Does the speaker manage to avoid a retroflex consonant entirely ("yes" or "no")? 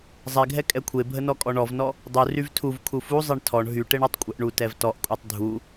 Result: no